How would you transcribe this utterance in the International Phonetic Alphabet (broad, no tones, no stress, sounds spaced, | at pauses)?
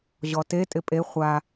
ʑ ɔ t e tʼ ɪ pʼ e χʷ a